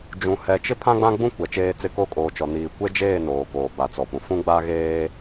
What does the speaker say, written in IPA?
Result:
d͡ʒ ũ˨ h ɛ˨ t͡ʃ ɪ˦ pʰ ã˦ ɡ͡b ã˦ ɡ͡b ũ˦ kʷ ɛ˨ t͡ʃ eː˦ t͡s ɪ˦ k o˦˨ kʼ oː˨ t͡ʃ ɔ˨ n iː˨ kʷ e˦ d͡ʒ eː˦˨ n oː˨ k oː˨ b a˨ t͡s ɔ˨ p ũ˨ f ũ˦ ɡ͡b a˦ ɣ eː˦

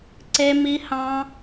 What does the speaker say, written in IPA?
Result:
ǀ e˦ m i˦ h ɑ̃˦

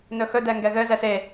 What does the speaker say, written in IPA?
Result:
n ɵ x ɵ d ɛ ŋ ɡ ɛ ɣ ɘ z ɛ s e

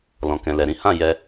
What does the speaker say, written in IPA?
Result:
l ɔ̃˨ k ɛ̃˨ l ɛ˨ ɾ ĩ˨˦ h ã˦˨ j ɛ˧

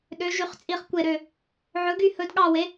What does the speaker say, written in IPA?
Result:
ɗ ø˨˥ ʒ y˨˥ χ t͡sʼ i˦˨ χ kʷ e˦˨ ɾ ø˦˨ | ʕ ɵ˨˥ ɡ y˦˨ h ɵ˨˥ d ɠ ɑ˦˨ w e˨˥

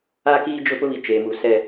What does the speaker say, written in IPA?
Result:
a˦ k iː˦ d͡ʒ ʊ˦ p ʊ˦ β i˨ t͡ʃ eː˨ m u˨ s ɛ˦

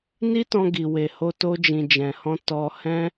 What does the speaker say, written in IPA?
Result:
n i˦ t ɔ̃˧ ɡ i˨ w e˨ h o˧ t o˧ d͡ʒ ĩ˨ d͡ʒ ɛ̃˨ h ɔ̃˧ t ɔ˧ h ɛ̃˦

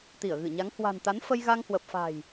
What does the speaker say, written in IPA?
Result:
t̪ i˧˩ ə̯ ɣ ɨ˧˩ ɲ a˨˦ ŋ h w a̤˨˩ n t̪ a˨˦ n f ə˧ j ɣ a˧ ŋ h w ə˨˩ p̚ f a̤˨˩ j

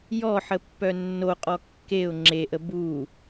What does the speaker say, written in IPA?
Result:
j ɔ ħ ə pː œ nː o qʼ ɔ kː e ʊ̯ ŋ͡ǁ e ʔ ə b u

